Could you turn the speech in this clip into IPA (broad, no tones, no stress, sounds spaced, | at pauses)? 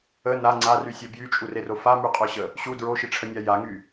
ə n a ŋ͡ǀ a r y sʲ œ b j y t͡ʃʼ u r e r o f a m y qʼ œ ɕ ə | ɕ u d ɹ o ʃ i ʈ͡ʂʰ ə nʲ a j a ŋ y